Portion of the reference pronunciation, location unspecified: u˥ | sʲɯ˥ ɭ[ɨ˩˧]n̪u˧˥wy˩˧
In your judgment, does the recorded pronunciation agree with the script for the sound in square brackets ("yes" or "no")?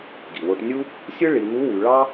no